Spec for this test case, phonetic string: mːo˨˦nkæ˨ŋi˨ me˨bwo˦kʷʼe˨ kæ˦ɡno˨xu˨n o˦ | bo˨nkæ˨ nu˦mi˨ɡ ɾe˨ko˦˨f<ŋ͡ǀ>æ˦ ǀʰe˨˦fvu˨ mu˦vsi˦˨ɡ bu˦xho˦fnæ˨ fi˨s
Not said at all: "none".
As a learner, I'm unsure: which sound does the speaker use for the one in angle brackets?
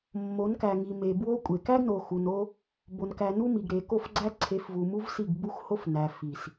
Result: ɡ͡ǀ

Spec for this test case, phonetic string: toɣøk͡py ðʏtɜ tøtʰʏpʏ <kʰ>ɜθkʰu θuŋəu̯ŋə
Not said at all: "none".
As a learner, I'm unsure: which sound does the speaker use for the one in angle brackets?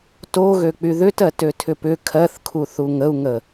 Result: kʰ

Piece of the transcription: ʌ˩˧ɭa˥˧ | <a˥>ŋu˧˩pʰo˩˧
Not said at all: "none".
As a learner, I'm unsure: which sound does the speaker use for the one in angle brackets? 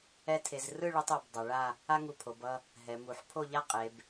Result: a˥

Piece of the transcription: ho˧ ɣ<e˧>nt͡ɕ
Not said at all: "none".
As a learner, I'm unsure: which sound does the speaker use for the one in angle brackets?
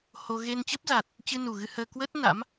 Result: e˧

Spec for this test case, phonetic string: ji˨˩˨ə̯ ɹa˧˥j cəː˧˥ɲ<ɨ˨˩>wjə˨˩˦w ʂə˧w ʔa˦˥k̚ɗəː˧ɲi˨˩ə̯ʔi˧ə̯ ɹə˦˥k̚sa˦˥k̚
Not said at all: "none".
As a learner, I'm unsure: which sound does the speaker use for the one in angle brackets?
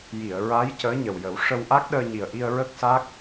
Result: ə˨˩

